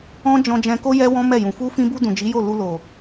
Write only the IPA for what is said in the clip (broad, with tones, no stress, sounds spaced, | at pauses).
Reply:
ɔ̃˦ d͡ʒ ɔ̃˧ d͡ʒ ɛ̃˧ k o˦ j ɛ˦ w ɔ̃˦ m ɛ˦˨ j ũ˨ f u˧ f ĩ˧ b u˧ d ũ˨ d͡ʒ i˨˦ j o˦˨ l u˧ l o˨